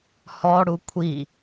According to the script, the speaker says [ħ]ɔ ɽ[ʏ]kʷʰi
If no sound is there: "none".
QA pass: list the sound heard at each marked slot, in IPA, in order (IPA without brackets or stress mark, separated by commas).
h, u